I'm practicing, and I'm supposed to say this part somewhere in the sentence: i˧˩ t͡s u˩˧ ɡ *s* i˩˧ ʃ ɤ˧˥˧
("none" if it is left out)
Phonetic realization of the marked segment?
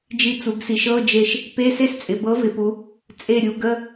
s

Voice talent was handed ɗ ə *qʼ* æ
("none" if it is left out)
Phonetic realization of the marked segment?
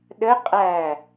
qʼ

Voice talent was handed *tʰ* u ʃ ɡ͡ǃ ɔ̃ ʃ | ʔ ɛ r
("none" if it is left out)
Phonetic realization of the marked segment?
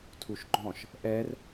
tʰ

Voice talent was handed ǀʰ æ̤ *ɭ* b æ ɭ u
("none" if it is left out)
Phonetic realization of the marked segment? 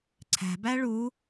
none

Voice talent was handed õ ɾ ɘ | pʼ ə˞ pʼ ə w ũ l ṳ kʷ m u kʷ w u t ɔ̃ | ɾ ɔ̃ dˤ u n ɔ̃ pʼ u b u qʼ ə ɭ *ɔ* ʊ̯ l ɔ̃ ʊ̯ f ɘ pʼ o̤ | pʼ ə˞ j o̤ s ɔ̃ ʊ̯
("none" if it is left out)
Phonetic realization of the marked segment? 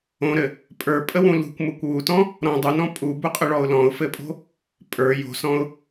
ɔ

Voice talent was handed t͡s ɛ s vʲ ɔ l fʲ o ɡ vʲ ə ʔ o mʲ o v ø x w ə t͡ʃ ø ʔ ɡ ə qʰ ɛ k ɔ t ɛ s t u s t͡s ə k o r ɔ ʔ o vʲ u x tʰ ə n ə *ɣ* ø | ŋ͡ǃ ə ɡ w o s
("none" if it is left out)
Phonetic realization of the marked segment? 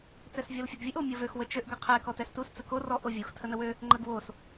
w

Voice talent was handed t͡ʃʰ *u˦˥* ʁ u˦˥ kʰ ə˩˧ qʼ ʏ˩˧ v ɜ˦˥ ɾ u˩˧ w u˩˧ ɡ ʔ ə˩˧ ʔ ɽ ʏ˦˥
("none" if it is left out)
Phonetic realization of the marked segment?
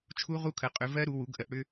u˦˥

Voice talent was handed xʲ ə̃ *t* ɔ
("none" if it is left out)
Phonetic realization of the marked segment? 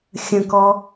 k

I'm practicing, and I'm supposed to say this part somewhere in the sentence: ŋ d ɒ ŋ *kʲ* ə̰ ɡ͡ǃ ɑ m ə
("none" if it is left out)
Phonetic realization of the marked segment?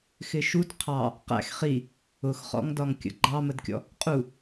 kʲ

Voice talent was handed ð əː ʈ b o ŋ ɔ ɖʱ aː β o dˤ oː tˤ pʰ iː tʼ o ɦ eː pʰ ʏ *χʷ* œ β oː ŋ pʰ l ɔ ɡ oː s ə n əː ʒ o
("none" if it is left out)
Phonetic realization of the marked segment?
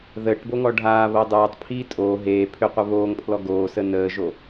qʷ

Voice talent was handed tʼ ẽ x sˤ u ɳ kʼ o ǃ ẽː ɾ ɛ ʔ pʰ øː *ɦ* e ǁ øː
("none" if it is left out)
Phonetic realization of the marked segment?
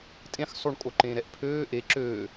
ʔ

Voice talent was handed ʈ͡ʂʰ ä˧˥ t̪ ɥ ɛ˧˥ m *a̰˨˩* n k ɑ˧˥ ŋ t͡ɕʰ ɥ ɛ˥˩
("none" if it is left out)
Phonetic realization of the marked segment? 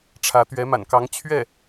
a̰˨˩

